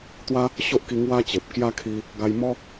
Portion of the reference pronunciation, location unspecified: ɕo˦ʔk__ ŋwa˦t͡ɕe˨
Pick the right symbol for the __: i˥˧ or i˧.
i˧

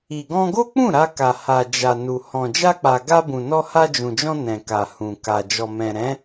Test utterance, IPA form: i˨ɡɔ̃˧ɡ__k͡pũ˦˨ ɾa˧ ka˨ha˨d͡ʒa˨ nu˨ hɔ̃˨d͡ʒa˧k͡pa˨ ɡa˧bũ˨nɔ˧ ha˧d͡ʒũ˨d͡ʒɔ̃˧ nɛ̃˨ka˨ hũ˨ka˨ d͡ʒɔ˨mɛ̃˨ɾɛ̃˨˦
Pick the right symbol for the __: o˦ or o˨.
o˦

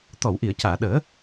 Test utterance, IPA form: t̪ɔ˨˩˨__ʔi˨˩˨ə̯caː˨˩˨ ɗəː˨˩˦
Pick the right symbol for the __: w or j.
w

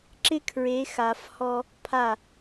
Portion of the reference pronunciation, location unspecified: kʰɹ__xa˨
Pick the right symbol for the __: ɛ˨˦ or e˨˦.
e˨˦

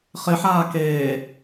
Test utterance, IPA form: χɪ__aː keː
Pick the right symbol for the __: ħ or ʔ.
ħ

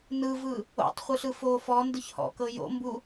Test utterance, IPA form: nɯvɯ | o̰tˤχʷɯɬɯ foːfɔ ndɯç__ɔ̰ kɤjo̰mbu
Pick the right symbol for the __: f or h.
h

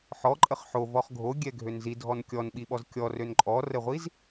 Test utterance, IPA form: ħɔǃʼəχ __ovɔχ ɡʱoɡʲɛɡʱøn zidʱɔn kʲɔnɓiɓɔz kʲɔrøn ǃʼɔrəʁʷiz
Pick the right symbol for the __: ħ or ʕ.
ħ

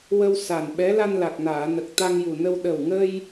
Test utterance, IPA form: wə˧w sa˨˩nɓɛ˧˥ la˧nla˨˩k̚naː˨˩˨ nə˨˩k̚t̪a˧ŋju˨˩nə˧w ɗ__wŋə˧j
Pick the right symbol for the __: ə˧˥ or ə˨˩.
ə˨˩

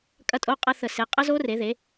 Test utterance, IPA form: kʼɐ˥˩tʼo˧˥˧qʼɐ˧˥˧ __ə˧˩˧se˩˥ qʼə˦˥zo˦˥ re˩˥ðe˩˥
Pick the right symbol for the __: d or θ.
θ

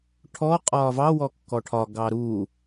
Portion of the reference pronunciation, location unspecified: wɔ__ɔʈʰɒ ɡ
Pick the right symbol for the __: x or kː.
kː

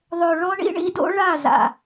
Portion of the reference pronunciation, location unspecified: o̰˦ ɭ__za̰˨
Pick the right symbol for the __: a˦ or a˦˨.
a˦˨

